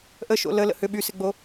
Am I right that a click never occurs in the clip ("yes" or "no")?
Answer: yes